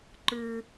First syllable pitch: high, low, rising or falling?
high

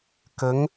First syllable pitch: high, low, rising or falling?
rising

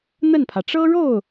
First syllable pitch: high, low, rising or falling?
falling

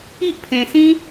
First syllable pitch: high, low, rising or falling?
high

